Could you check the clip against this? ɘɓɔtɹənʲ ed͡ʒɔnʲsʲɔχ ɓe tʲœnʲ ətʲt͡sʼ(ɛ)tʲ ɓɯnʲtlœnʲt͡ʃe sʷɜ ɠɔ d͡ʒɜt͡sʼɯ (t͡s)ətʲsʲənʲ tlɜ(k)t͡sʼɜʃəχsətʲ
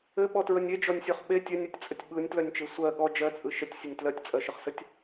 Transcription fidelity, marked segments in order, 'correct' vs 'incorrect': incorrect: ə, incorrect: ʃ, incorrect: tʲ

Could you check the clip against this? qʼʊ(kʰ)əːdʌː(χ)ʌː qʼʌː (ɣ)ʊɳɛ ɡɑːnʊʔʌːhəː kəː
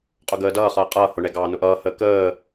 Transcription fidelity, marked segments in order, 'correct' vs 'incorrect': incorrect: ɡ, correct, incorrect: h

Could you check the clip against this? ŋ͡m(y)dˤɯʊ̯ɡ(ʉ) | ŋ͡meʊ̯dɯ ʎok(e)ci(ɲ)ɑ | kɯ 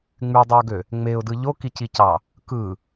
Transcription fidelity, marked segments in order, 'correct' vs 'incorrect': correct, incorrect: ø, incorrect: i, incorrect: c

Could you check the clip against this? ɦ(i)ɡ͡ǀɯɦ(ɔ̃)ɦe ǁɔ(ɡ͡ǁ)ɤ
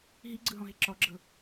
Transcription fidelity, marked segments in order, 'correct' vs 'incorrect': correct, correct, correct

